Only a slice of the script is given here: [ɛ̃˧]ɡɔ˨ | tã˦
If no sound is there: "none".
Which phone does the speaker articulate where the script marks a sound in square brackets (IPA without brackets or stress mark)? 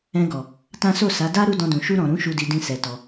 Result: ɛ̃˧